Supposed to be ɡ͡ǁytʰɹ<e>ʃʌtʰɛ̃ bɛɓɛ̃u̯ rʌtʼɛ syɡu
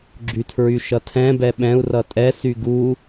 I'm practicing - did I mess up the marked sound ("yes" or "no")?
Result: yes